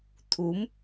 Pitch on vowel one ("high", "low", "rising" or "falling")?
rising